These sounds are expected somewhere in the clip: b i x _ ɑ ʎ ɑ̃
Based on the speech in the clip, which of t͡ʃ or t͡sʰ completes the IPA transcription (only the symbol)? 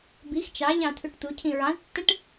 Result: t͡ʃ